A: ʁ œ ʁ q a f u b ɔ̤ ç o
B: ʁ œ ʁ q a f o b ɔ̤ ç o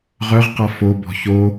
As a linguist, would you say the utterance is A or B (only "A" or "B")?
B